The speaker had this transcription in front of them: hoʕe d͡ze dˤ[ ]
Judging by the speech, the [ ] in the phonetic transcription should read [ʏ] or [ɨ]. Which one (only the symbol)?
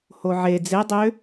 ʏ